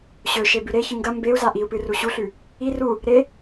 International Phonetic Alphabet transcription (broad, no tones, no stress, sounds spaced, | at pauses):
ɕ ɵ ʃ e b ʉ ɾ e ç ɨ ŋ ɡ ɐ m b e u̯ z a ʔ i u̯ p ɨ r u ɕ u ɬ ʉ | i r u | ɾ e